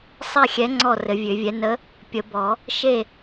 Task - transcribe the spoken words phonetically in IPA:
sˤ ɛ˥˨ xʲ ɛ˨˥ ŋ͡ǀ ɔ˥˨ r ɘ˨˩˦ vʲ ø˨˩˦ vʲ ɛ˨˥ n ə˨˥ | pʲ ə˨˩˦ b ɔ˨˩˦ | ʃ e˥˨

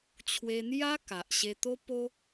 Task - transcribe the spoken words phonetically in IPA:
t͡ɕʰ w e˧ n̪ j a˦ k a˨ ʔ ɕ e˧ t̪ o˦ p o˦

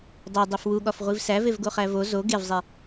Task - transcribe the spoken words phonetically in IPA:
dˤ e dˤ i f w u ɠ ɒ f ʁʷ i v s æ v e v ɡ o χ æ v o z o ɡ e v zˤ e

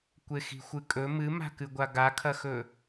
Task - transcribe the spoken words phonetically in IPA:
kʷ e x i̤ xʷ ɨ kʼ ɵ m ɨ m a̤ k ɨ ɡʷ a ɡ a kʰ ɐ x ɵ

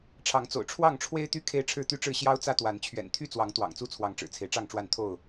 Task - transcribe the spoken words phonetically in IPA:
ʈ͡ʂʰ ɑ˨˦ ŋ t͡s o̰˨˩ ʊ̯ ʈ͡ʂʰ w ɑ˥˨ ŋ ʈ͡ʂʰ w e˦ ɪ̯ t̪ y˦ kʰ e˦ ɪ̯ ʈ͡ʂʰ ɻ̩˥˨ t̪ y˦ ʈ͡ʂ ɻ̩˥˨ ɕ j ɑ˦ ʊ̯ t͡s ä˦ t̪ w a˨˦ n t͡ɕʰ ɥ ɛ̰˨˩ n t̪ʰ y˥˨ t͡s w ɑ˨˦ ŋ t̪ w ɑ̰˨˩ ŋ t͡s u˥˨ t͡sʰ w ɑ˨˦ ŋ ʈ͡ʂ ɻ̩˨˩ t͡sʰ e˦ ɪ̯ ʈ͡ʂ ɑ˥˨ ŋ ʈ͡ʂ w a˥˨ n t̪ʰ o˥˨ ʊ̯

